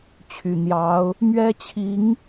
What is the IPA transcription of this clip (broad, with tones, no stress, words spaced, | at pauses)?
t͡ɕʰy˨˩n̪jɑ˧˥ʊ̯ | mɥɛ˥t͡ɕʰi˧˥ŋ